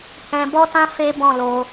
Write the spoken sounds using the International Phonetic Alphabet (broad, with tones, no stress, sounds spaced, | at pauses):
h ɛ̃˧ b ɔ˦ t ã˦ f e˦ b ɔ̃˦˨ l o˧